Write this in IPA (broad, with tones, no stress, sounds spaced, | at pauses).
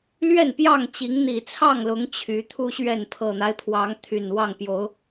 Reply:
l ɥ ɛ˥˨ n p j ɑ˥˨ ŋ t͡ɕ i˨˦ ŋ n̪ i˨˩ t͡sʰ ɑ˥˨ ŋ l ʊ˨˦ ŋ t͡ɕʰ y˨˦ t̪ʰ u˦ ɕ ɥ ɛ˥˨ n pʰ ɤ˨˩ n̪ a˦ ɪ̯ pʰ w ɑ˨˦ ŋ t̪ʰ y˨˩ n w ɑ˥˨ ŋ p j o˨˦ ʊ̯